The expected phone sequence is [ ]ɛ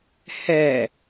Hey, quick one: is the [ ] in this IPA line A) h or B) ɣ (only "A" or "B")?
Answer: A